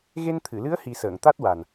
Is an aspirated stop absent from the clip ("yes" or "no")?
no